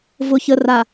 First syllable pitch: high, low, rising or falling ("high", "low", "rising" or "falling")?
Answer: low